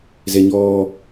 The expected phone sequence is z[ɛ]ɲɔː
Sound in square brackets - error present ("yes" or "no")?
no